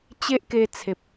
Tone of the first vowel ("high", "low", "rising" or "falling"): high